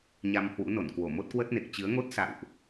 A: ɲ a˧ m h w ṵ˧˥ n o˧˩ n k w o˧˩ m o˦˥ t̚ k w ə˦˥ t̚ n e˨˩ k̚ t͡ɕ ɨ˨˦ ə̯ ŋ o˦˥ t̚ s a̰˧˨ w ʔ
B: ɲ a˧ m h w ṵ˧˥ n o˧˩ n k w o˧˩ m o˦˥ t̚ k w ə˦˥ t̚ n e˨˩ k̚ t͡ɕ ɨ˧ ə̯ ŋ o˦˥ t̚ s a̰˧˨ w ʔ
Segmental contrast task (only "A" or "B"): A